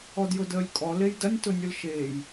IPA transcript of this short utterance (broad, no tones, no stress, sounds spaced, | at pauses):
ɔ d j ʊ d əː lʲ kʼ ɔ l e j d ɐ nʲ t ʊ nʲ ʊ l ʃ eː j